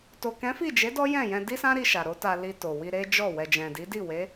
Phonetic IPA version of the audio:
t o˨ k ɛ̃˨˦ f i˦˨ d͡ʒ e˨˦ d ɔ˦ j ɛ̃˦˨ j ɛ̃˧ d i˦ s ã˦ ɾ i˧ ʃ a˨ ɾ o˨˦ t a˧ l i˧ t o˨ w i˧ ɾ e˦ d͡ʒ ɔ˦˨ w ɛ˨ d͡ʒ ɛ̃˨ d i˨˦ d i˦˨ w e˨˦

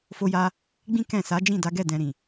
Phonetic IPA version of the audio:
f o˧ j a˧ | ɡ͡b ĩ˦ k ɛ̃˦˨ s a˨˦ d͡ʒ ĩ˦˨ d a˨˦ ɡ ɛ˦˨ d ɛ̃˧ ɾ ĩ˨

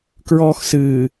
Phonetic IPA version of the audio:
k ɹ ɔː x s ɨː

